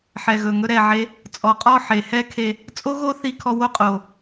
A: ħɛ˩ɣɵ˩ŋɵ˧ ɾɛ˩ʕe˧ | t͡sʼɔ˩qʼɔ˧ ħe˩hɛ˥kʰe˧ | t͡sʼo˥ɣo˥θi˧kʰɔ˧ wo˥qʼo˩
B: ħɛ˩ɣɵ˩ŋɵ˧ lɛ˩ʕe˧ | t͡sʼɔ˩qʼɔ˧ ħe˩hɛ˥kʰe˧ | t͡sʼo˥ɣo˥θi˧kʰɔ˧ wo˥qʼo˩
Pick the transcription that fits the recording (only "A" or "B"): A